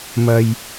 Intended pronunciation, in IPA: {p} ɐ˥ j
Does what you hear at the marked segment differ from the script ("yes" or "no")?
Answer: yes